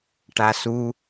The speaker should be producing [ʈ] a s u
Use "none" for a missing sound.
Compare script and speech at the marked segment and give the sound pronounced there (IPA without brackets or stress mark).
ʈ